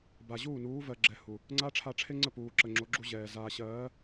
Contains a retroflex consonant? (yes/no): yes